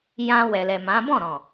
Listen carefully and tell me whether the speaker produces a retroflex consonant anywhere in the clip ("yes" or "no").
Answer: no